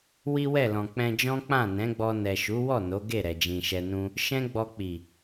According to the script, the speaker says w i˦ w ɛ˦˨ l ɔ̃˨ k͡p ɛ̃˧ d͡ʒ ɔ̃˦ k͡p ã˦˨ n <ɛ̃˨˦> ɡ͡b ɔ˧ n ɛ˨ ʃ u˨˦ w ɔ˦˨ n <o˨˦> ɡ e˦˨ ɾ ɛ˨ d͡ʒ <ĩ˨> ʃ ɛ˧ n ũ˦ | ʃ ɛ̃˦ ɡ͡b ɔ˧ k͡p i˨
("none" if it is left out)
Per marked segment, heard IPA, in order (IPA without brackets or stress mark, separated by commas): ɛ̃˨˦, o˨˦, ĩ˨